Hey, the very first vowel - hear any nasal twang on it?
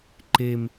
no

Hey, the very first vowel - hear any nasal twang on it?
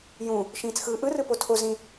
yes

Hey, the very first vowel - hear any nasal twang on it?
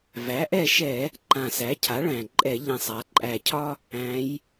no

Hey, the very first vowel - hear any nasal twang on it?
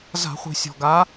no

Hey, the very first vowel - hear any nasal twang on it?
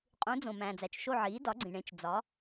yes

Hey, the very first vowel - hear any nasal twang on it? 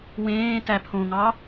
yes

